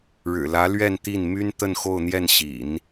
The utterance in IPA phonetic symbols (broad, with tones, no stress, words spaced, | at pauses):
ɻɻ̩˨˩lä˧˥ lɥɛ˥˧nt̪i˥˩n my˥n t̪ə˥˧nxo˥˧ʊ̯n̪jɛ˥˩n ɕḭ˨˩˦n